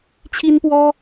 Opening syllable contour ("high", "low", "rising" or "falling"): high